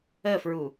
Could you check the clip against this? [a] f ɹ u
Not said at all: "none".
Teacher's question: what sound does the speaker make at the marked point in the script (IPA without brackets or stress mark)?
ə